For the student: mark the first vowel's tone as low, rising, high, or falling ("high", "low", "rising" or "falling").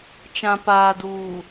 low